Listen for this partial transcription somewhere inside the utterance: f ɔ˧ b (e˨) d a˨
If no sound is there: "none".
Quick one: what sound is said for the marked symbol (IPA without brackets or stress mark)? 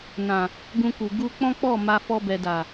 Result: ɛ˨